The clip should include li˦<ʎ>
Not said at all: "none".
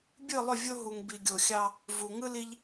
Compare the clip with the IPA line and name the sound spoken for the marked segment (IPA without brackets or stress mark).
ʎ